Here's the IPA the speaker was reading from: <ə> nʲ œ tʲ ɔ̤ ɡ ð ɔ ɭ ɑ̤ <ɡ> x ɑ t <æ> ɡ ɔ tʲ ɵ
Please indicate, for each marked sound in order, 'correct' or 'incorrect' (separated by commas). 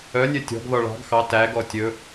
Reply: incorrect, correct, correct